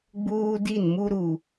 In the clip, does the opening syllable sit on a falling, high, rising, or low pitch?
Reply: high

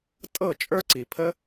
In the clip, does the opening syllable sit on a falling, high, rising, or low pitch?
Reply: falling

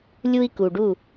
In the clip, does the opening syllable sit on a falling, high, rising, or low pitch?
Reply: high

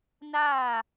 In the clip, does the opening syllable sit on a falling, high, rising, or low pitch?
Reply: falling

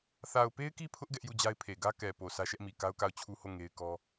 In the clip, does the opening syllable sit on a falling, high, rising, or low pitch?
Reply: low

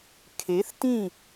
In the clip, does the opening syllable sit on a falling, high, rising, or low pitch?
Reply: rising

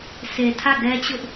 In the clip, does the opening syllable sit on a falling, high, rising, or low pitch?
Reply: low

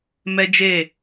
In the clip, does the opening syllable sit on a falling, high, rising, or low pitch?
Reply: high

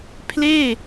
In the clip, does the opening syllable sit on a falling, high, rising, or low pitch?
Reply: falling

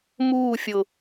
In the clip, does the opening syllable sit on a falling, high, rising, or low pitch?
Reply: falling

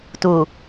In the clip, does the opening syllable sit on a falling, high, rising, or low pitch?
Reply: low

